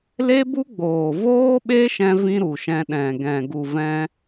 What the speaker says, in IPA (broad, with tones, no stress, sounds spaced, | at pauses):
l e˦ b u˦ ɡ͡b oː˨ v oː˦ ɓ e˦ ʃ ɛ̃˧ v ĩ˧ ɾ u˨ ʃ ɛ̃˧ ɗ ɛ̃˨ ɡ ɛ̃˨ ɡ u˨ v ɛ̃˧